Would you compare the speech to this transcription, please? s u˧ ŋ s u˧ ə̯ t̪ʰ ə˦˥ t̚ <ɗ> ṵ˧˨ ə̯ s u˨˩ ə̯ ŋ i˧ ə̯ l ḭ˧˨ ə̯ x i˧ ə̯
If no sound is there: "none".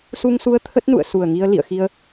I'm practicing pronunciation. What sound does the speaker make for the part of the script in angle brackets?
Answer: n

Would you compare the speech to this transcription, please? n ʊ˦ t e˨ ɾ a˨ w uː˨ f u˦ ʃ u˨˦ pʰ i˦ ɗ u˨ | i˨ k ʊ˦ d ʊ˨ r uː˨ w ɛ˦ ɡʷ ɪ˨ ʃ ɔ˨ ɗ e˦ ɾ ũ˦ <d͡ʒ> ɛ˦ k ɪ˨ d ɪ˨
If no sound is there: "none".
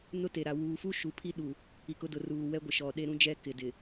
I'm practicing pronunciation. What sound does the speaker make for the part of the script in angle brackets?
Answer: d͡ʒ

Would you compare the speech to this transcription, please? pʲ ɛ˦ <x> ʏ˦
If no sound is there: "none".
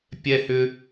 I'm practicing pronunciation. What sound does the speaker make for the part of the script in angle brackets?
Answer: h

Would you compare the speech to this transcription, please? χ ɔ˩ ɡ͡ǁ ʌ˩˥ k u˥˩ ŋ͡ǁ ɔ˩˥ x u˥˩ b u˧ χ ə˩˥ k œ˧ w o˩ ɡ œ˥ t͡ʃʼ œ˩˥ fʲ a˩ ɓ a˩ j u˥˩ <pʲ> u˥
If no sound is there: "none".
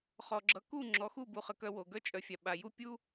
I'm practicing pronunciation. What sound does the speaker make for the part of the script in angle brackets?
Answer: pʲ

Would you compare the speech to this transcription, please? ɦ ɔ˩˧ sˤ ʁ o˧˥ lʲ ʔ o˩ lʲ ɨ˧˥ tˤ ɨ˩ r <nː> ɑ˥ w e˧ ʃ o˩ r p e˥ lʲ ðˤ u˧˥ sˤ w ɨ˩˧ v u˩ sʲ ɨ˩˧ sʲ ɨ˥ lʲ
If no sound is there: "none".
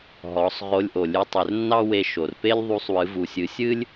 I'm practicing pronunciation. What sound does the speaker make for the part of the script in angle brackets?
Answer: nː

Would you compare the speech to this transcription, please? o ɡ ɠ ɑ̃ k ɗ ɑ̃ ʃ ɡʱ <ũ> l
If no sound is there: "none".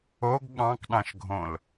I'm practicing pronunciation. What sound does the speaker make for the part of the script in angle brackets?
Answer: õ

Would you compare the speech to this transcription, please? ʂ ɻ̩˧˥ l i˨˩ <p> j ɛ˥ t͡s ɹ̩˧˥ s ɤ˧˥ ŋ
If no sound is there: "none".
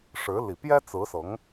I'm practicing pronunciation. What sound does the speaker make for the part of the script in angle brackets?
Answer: p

